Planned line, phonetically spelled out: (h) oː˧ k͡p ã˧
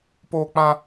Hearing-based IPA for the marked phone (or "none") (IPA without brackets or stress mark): p